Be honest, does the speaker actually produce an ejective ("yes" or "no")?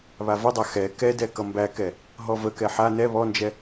no